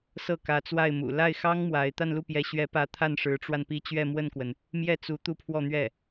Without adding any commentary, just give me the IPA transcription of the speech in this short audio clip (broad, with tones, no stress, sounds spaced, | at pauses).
s ɤ˥˩ k ä˧˥ t͡s w a˥˩ ɪ̯ m ṵ˨˩ l a˥˩ ɪ̯ x ɑ˥ ŋ m w a˧˥ ɪ̯ t̪ a˥˧ n l u˥˩ p j ɛ˧˥ ɕ ɥ ɛ˧˥ p ä˧˥ t̪ʰ a˥˩ n ʂ ɻ̩˧˥ ʈ͡ʂ w a˧ n p i˥˧ t͡ɕ ɥ ɛ˥˧ m w ə˥˩ n k w ə˩ n | m j ɛ˥˩ t͡s u˧˥ t̪ u˥˧ pʰ w ɔ˥˧ n̪ ɥ ɛ˥˩